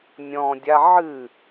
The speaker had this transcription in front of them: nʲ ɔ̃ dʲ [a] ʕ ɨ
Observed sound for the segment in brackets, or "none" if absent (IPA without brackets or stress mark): a